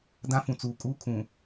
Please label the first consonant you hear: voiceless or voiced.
voiced